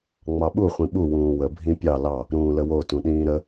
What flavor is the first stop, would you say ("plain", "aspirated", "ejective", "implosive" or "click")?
implosive